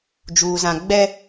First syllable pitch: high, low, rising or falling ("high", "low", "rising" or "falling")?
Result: low